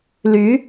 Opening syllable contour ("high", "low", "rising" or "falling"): rising